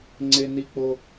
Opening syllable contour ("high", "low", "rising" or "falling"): high